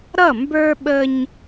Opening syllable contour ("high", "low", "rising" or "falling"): falling